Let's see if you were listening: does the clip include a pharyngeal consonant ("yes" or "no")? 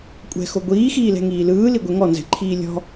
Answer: no